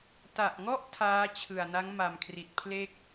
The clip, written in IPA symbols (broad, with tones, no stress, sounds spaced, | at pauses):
t a˨˩ ʔ ŋ ɔ˥˩ ʔ tʰ aː˦˥ t͡ɕʰ ɯ˨˩ a̯ n a˦˥ ŋ m a˨˩ m kʰ r i˨˩ t̚ pʰ l e˥˩ k̚